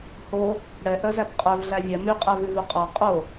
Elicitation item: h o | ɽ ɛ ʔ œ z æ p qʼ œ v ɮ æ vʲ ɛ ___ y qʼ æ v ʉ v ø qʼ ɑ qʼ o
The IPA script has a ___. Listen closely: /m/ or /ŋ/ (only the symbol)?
m